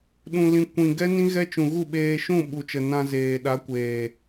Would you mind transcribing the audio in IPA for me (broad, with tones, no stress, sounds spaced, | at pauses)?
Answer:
ɗ ũ˨ l ĩ˨ kʷ ĩ˨ ɡ ɛ˦ n ĩ˦ ɣ ɛ˦ t͡ʃ ũ˨ ɣ u˦˨ ɓ eː˧ ʃ ũ˦˨ ɓ u˨ t͡ʃ ə˨ n ã˧ z eː˨ ɗ a˨˦ kʷ eː˨